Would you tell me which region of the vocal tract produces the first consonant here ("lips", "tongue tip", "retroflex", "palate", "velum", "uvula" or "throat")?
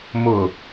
lips